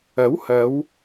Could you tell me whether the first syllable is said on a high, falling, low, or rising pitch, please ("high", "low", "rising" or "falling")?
rising